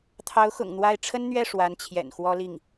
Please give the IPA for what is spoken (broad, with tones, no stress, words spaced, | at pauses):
t̪ʰɑ˧˥ʊ̯xʊ̰˨˩ŋ n̪wa˥˩ɪ̯ ʈ͡ʂʰə˥nn̪ɥɛ˥˩ ʂwa˧˥nt͡ɕʰjɛ̰˨˩nxwɔ˥li˥˩ŋ